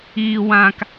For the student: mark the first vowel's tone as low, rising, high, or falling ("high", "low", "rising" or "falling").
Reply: low